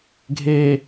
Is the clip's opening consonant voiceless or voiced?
voiced